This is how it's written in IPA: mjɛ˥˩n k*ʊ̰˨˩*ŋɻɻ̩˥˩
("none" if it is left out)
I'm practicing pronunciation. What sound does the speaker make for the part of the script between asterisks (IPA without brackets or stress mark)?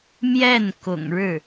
ʊ̰˨˩